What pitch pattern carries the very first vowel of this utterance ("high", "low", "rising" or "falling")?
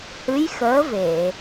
rising